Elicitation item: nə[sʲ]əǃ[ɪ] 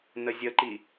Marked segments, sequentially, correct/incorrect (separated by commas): incorrect, incorrect